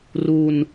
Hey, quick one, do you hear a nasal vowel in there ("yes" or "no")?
no